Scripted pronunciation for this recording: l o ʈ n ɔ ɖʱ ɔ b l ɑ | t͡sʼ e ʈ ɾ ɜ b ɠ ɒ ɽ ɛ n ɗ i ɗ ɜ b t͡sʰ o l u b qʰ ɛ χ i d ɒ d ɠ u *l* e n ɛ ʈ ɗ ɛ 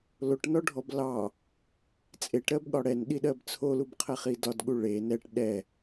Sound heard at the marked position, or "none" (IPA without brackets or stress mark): ɭ